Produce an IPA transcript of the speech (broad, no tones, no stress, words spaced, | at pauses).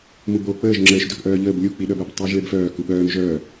mubo k͡pəːʒ ŋ͡ǁəːʃ dœkʔœːʎəːb lʲu k͡piɗœbøb tˤəːʒɭebfœː kuɓœːm ʒœː